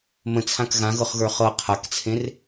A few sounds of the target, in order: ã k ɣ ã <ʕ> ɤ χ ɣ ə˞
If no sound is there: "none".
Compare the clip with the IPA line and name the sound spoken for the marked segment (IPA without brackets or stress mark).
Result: ɣ